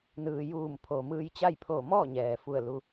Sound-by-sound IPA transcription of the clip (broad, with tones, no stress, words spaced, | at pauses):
nɯː˩juː˧˩m pʰoː˩mɯː˧jt͡ɕa˥˨jpʰoː˧˩ mɔː˥˨ɲɛː˩fu˧˩ə̯ lu˧